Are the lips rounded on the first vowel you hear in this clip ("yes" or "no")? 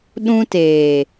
yes